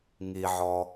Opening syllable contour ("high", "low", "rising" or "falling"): low